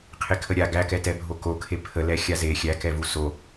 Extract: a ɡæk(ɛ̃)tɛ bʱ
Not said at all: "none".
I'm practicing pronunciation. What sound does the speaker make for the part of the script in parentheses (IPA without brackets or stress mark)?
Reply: ɛ